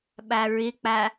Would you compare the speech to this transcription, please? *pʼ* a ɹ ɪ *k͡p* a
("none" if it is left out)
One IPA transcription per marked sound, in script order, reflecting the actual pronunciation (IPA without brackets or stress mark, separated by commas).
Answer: ɓ, k͡p